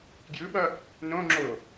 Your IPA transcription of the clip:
ɡ j ɯ ɓ ʌ | n õ ŋ͡ǁ o

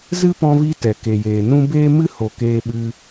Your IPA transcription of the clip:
z ɨ˦ p ɔ̃˧ v i˧ t ɛ˨ k e˨ j eː˨ n ũ˦ b eː˦ m ɨ˦ h o˨ k eː˧ ɓ ɨ˧

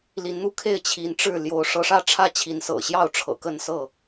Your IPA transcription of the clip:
l i˨˦ n n̪ u˦ kʰ e˥˨ ɪ̯ t͡ɕʰ i˨˦ n ʈ͡ʂ ɻ̩˥˨ l j o˨˦ ʊ̯ ʂ ɤ˨˦ ʂ ä˥˨ ʈ͡ʂʰ ä˥˨ t͡ɕʰ i˨˦ n s ɤ̰˨˩ ɕ j ɑ˥˨ ʊ̯ ʈ͡ʂʰ ɤ̰˨˩ k ə˥˨ n s ɤ˥˨

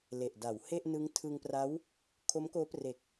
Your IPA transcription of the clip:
l e˨˩ ʔ d a˩˦ w h e˥˩ ʔ n ɯ˦˥ ŋ tʰ ɯ˧ ŋ p r a˦˥ w | kʰ o˦˥ m k oː˦˥ p r e˨˩ k̚

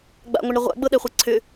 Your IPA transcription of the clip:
ɡ͡b a̰ ŋʷ ə ɳ ɾ ə ʁʷ a̰ ɡ͡b ɤ ɗ ɛ χʷ e ǀʰ ʏ

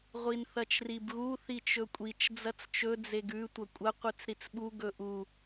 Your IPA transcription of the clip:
ʁʷ i n θ ɐ t͡ʃ r i b ɣ u θ i t͡ʃ ɵ kʷʼ i t͡ʃ d͡z ɐ t͡s t͡ʃ ɵ d͡z e ɡ ʉ tʷ ɐ kʷʼ ɐ qʷ ɨ t͡s ɾ i t͡s ɓ u ɡ ɵ ʔ u

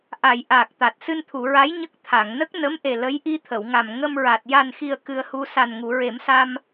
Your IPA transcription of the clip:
ʔ a˨˩˨ j ʔ aː˨˩ k̚ t̪ a˨˩ t̚ s ɨ˧ n t̪ʰ u˨˩˨ ɹ a˧˥ j ɲ ə˦˥ k̚ t̪ʰ a˨˩˨ ŋ n ə˦˥ k̚ n ə˧˥ m ʔ e˨˩ l ə˧˥ j ʔ i˧ t̪ʰ ə˨˩˨ w ŋ a˨˩ m ŋ ə˧ m ɹ a˨˩ t̚ j a˨˩ n x i˨˩ ə̯ k ɨ˧ ə̯ h u˧ s a˨˩ n ŋ u˨˩˨ ɹ e˨˩˦ m s a˧ m

